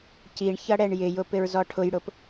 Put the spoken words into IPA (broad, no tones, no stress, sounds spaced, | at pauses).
c i ɳ ç ʌ ɽ ɛ ɳ j ɪ j ʊ p ɪ ɹ z ɔ ʈʰ ʊ j ɽ ʊ p